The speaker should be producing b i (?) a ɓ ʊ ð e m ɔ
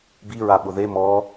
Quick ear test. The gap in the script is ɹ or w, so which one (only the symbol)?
ɹ